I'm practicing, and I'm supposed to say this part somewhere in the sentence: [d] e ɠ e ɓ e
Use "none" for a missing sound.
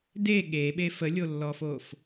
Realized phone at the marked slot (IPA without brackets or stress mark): d